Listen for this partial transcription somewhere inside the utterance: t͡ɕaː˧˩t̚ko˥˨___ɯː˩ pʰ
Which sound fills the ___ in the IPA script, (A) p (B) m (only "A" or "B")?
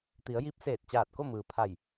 B